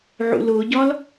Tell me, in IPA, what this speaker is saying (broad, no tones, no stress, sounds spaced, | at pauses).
ʕ ṵ l ʊ ɟ ɒ l